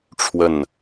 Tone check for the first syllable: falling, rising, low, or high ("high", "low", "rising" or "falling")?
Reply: falling